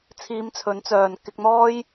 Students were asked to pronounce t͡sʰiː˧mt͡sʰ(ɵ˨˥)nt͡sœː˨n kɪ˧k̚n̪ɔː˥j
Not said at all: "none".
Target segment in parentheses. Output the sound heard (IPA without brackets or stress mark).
ɵ˨˥